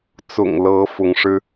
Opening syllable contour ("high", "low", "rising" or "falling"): low